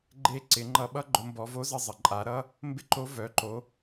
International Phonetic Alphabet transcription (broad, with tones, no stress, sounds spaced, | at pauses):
ɡ͡ǃ e˧˥ ǀ ɪ˩˧ ŋ͡ǃ ʌ˧ ɓ ʌ˥ ɡ͡ǃ ʊ˩˧ m b ɔ˩˧ v o˧˥ z ə˧ zˤ ə˩ ǃʼ a˩˧ ɾ ʌ˥ | m b ɪ˥ ǃ o˧˥ v œ˩˧ ǃ o˩˧